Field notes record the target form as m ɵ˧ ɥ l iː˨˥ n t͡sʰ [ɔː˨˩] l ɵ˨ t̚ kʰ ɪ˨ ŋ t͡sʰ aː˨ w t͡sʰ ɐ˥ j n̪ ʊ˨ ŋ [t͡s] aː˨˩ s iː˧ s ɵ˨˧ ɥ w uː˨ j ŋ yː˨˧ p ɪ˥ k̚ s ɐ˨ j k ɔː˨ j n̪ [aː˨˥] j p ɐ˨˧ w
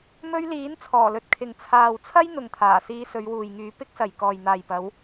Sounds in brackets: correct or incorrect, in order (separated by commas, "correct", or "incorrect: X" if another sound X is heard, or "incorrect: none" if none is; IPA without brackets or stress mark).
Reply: correct, incorrect: t̪ʰ, incorrect: aː˨